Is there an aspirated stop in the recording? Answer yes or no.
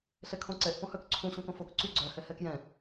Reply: yes